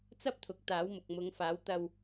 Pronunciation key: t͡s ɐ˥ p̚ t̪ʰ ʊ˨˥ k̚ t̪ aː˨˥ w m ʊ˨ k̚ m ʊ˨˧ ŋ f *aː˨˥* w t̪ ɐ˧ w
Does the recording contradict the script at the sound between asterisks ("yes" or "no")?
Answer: no